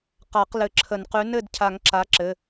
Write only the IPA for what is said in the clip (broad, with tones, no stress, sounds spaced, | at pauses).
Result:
q a˨˩˦ q l ɘ˨˩˦ ǁʰ ə˨˩˦ n q ʉ˨˥ n ɘ˥˨ d cʰ a˨˩˦ ŋ ǁ a˨˥ ǁ ɘ˩˧˩